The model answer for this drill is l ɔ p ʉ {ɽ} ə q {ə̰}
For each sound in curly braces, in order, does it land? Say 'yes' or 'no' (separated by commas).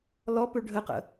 no, yes